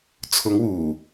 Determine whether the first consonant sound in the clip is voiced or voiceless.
voiceless